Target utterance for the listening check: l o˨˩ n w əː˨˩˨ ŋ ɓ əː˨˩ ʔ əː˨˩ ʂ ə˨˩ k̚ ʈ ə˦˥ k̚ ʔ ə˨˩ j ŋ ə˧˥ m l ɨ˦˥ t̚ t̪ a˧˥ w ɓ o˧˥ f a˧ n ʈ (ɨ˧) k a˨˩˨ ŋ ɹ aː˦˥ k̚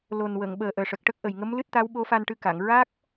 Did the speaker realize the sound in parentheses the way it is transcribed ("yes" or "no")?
yes